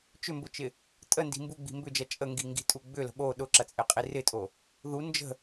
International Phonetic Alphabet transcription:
t͡ʃʏmbʊt͡ʃɪ | tʼəndi̤ mbuɡ͡bi̤ mbʏd͡ʒɐ t͡ʃʼəŋɡiŋɡi̤tʼu ɡ͡bʏlə̤ ɓo ɗʊǁɐt͡sʼɪqʼi rɪtʼo | ðu nd͡ʒə̤

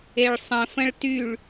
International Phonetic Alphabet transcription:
eɭsˤə̃fə̃ɭ tyɭ

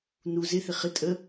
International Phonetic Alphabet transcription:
nu zɪ θɪχɪ tʼə

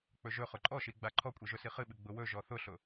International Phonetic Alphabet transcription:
k͡pɵʒɵχʊ ǃʼɔʃiɡ͡ba ǃʰɔkʷʼiʒɵ siχɨɓɨ ɡ͡bʊwɵ ʒɔθʊɬʊ

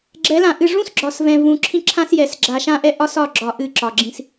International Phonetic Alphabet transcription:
ɡ͡ǁɛ˨˦lã˨ ʔɨ˨ʐũ˦sɡ͡ǁɒ˨svɛ̃˨ vũ˨ ǁʰĩ˦ǁʰã˦sjɛ˨s ɡ͡ǁa˨ʃã˦ʔɛ˦ʔɒ˦s ɒ˦˨ɡ͡ǁɒ˨ ʔɨ˦˨ǁɒ˨ɡ͡ǁĩ˦s

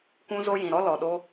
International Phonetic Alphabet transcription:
kʷũ˧zo˧jĩ˨ɾɔ˧ lɔ˨ɗo˧

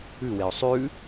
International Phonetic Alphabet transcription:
ʉweʊ̯ sˤʉ

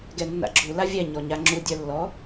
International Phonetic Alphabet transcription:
ɡɛnːa̰ɡ͡ǁu lavʲɛ ɲɔɲaŋ͡ǁu dʲœlːɔ

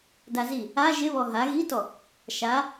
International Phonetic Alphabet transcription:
dazi | a ʒɪ βɔɦa ɣitɔ | ʃa

